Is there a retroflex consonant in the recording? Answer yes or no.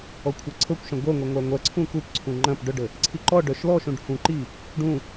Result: yes